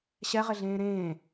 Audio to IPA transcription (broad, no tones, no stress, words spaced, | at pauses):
ɕɛʁɪɮẽː ɾẽː